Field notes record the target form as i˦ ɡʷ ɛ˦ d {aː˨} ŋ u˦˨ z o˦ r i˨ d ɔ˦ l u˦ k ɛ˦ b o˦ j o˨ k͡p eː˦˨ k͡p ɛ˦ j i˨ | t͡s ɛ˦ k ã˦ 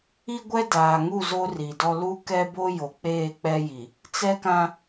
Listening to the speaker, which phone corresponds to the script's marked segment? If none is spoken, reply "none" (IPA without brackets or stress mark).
aː˨